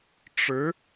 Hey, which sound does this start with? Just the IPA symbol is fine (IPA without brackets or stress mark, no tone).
ʈ͡ʂ